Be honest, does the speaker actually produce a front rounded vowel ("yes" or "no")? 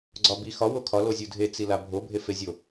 no